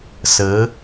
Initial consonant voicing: voiceless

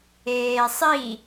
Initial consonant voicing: voiceless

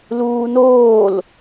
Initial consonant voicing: voiced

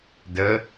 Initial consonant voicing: voiced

